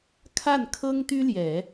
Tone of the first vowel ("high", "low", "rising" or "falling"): falling